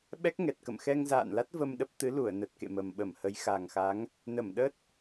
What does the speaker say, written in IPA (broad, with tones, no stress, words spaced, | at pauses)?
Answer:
ɓɛ˦˥k̚ŋɛ˨˩t̚ kə̰˧˨mxɛ˧ŋza̰ː˧˨nla˦˥t̚ və˧mɗə˦˥p̚ t̪ɨ˨˦lu˧˩ə̯nə˨˩t̚kḛ˧˨ mə˨˩mɓə˧˩mhə˨˦j xa˨˩ŋxa˨˦ŋ | nə˧˩mɗə˦˥t̚